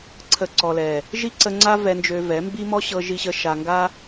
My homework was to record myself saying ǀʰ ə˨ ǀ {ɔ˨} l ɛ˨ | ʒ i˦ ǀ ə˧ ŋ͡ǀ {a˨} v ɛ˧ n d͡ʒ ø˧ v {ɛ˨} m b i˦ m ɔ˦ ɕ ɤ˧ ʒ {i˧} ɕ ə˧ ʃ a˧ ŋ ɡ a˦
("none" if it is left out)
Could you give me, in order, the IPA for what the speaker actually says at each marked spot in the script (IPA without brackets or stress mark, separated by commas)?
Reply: ɔ˨, a˦, ɛ˨˦, i˧